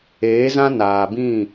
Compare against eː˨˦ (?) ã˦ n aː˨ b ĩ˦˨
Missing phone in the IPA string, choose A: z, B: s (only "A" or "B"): A